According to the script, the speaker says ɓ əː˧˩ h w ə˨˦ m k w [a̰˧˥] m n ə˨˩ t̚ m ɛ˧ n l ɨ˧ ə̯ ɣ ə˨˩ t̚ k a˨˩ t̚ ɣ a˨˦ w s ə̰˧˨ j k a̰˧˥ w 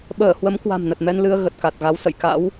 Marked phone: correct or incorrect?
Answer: incorrect